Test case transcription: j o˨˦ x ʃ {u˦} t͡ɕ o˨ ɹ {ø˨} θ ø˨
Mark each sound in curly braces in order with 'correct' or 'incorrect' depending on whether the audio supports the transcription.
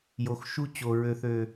correct, correct

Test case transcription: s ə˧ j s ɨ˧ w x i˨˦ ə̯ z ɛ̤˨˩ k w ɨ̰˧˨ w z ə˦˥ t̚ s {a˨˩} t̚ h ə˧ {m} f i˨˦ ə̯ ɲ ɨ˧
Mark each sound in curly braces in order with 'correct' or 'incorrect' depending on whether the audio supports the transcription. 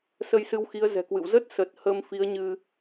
incorrect: ə˨˩, correct

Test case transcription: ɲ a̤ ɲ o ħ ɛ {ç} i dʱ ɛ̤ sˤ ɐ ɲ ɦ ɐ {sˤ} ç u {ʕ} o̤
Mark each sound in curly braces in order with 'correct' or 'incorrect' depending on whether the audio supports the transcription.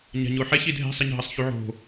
correct, correct, correct

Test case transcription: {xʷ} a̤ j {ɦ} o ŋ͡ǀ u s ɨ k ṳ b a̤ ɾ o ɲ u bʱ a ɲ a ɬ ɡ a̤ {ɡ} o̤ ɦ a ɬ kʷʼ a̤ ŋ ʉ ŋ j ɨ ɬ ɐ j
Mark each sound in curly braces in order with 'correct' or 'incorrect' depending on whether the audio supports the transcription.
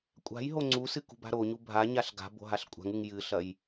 incorrect: kʷʼ, correct, incorrect: b

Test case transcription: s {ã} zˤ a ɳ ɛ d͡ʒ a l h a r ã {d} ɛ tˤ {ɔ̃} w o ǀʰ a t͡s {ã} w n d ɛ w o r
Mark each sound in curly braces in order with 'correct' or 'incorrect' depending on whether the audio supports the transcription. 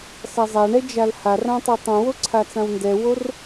incorrect: a, incorrect: tˤ, incorrect: õ, correct

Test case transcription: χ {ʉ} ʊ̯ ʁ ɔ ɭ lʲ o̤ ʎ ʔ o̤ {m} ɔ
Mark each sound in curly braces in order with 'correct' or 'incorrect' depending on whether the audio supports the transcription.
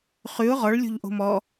correct, correct

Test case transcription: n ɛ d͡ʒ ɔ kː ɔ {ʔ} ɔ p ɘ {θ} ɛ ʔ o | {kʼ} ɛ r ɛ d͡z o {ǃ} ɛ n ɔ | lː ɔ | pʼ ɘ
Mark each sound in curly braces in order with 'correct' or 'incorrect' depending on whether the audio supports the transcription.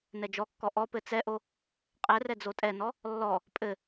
correct, incorrect: t͡s, incorrect: qʼ, incorrect: tʼ

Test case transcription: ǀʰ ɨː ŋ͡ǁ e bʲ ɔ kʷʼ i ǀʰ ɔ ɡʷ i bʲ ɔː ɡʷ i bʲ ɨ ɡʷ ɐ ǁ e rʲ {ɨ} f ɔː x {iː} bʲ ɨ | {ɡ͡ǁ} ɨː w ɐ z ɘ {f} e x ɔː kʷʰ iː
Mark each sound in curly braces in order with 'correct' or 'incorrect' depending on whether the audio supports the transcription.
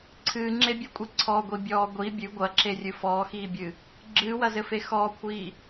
correct, correct, correct, correct

